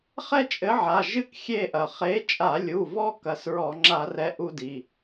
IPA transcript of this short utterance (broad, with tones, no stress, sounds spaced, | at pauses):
χ ɛ˦ t͡ʃʼ ɘ˨˥ ʕ a˩˧˩ ʒ ɨ˦ k xʲ e˦˨ ʔ ɐ˩ χ e˨˥ t͡ʃʼ a˧˩˧ lʲ u˩˧˩ v ɔ˦ k ɐ˩˧˩ s ɹ ɔ˧˩˧ ŋ͡ǁ a˧˩˧ r ɛ˨˥ ʔ u˦ d i˩˧˩